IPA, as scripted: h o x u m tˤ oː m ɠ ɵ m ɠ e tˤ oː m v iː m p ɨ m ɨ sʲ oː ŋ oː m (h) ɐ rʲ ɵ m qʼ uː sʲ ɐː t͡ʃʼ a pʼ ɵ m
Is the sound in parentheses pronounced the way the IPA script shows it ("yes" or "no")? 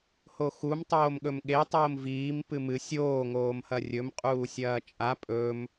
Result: yes